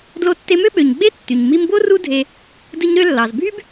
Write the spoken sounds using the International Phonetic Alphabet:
d l o˧ tː e˧ m ø˥ ɓ ø˩ ɲ ɡ͡b e˥ tː y˩ ɲ m i˧ m b o˥ r u˥ dʱ e˧ | d ɯ˧ ɲ ɾ ø˧ lː ɑ˩ z bʱ y˥ b

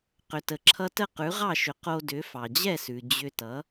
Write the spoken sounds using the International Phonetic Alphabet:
q ʏ˩ t ə˩ ǁʰ ʌ˧ t ə˥˩ q ʉ˩˥ ʁ ɑ˥˩ ʃ ʏ˩˥ q o˧ d ʏ˩˥ f ɑ˩ d͡ʑ ɛ˥˩ s ʉ˩ d͡ʑ ʏ˧ t ʌ˩˥

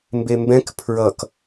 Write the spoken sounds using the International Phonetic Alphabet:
m b e m b ɛ̃ k pʰ ɹ ʌ k

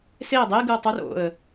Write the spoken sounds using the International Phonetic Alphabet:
s e ə̯ dˤ e ɡ ɯ ə̯ tˤ u r o̰ ə̯

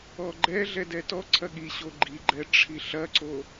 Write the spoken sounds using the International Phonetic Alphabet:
ɔ ɡ͡ǃ ɛ ɮ ɛ d ɛ t ɔ ǀʰ ɐ ɠ i ɕ o ɡ͡ǃ i ɡ͡ǃ ɛ ʈ͡ʂʰ i ɬ ɐ ǀ o

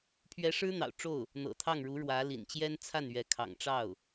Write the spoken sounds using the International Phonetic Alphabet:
pʰ ɥ ɛ˧˥ ʂ ɻ̩˥ n̪ ɑ̰˨˩ ʊ̯ ʈ͡ʂ o˥˩ ʊ̯ | n̪ ɤ̰˨˩ t̪ʰ ɑ˥˩ ŋ ɻ u˧˥ ɻ w ä˧˥ l ḭ˨˩ n t͡ɕ j ɛ˥ n t͡sʰ a˥˩ n ɥ ɛ˧˥ kʰ ɑ̰˨˩ ŋ ʈ͡ʂ ɑ˥˩ ʊ̯

